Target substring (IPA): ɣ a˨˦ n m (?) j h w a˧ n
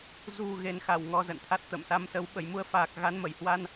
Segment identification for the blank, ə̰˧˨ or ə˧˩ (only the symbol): ə˧˩